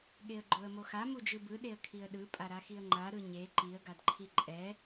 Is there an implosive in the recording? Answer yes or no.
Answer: yes